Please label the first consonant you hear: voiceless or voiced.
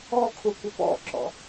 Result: voiceless